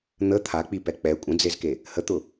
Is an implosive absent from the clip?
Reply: yes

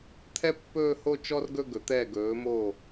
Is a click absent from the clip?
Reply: yes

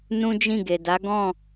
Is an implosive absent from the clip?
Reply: yes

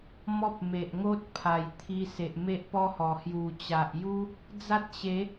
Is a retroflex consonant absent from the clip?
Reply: yes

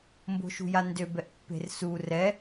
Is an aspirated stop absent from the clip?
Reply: yes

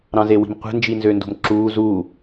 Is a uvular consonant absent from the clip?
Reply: no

